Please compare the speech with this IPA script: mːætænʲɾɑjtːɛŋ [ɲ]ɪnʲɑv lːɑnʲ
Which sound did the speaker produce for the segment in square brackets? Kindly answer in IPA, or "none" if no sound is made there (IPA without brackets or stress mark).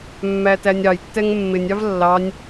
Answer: mː